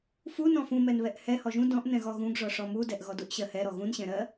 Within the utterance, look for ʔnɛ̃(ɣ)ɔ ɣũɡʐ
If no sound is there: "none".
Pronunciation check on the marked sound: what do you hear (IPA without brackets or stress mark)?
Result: ɣ